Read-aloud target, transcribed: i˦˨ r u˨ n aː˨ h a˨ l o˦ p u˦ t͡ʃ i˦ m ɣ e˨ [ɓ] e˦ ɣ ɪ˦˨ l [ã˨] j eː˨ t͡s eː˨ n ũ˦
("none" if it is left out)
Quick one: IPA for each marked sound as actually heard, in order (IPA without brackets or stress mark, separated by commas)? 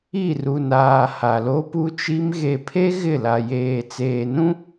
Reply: pʰ, a˨